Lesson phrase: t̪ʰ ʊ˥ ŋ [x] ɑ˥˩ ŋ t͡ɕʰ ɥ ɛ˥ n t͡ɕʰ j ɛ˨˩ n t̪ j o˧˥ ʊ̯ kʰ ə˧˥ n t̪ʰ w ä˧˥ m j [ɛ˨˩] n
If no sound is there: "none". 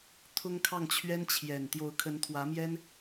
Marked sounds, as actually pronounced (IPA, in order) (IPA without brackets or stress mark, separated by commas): kʰ, ɛ˥